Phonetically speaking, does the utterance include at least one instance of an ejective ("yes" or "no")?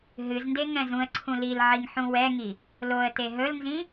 no